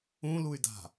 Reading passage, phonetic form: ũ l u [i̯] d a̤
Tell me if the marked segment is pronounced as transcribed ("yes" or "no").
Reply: no